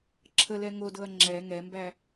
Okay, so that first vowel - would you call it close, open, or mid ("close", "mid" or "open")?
mid